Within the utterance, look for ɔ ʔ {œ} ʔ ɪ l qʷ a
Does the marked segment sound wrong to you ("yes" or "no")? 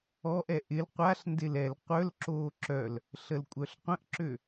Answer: yes